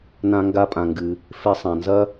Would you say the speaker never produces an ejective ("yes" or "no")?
no